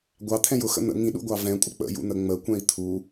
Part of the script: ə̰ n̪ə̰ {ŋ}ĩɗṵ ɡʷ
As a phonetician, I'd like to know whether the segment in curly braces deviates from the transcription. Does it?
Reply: no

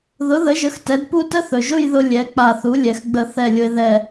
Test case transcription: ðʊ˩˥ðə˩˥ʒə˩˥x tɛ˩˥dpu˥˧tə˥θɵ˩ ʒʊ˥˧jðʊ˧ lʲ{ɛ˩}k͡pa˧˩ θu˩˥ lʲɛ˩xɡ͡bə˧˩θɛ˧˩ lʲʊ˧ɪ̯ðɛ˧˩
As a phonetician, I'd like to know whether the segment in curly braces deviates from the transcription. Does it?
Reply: yes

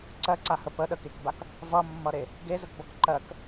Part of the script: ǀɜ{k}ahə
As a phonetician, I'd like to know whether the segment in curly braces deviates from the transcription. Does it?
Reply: yes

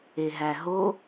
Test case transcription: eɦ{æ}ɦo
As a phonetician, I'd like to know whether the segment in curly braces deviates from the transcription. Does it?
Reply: no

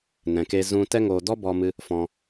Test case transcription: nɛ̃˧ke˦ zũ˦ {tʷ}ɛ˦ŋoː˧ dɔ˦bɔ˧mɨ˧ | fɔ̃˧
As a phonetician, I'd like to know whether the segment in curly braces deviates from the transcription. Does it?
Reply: yes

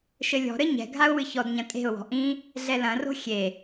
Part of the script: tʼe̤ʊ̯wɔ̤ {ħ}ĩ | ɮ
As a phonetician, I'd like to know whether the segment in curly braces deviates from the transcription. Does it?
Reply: yes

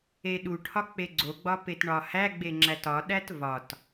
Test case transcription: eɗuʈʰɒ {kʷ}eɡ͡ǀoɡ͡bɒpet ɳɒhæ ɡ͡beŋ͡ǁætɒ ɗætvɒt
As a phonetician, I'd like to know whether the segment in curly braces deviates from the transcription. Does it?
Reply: yes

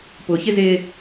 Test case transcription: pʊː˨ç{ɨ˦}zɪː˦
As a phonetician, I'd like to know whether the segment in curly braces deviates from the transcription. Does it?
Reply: yes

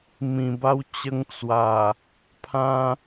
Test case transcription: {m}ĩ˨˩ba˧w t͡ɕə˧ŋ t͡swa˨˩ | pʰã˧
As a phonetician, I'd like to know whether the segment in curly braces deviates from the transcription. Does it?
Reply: no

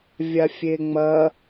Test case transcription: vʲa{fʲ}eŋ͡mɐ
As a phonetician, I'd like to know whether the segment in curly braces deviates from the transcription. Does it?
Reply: no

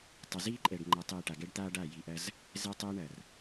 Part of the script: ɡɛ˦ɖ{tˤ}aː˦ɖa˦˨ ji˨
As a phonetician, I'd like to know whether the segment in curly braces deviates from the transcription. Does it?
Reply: yes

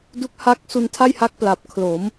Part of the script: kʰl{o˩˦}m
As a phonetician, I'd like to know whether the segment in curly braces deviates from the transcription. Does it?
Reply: no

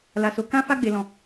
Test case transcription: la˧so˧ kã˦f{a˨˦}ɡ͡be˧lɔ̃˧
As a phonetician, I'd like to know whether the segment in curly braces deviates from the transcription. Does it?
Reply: yes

